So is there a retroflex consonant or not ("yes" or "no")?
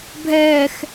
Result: no